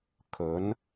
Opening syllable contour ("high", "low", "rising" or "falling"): rising